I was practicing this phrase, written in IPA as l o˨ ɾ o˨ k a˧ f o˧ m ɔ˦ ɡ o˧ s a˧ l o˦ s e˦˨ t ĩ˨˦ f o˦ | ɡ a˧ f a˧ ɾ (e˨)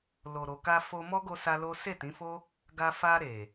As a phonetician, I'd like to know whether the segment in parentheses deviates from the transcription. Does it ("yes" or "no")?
no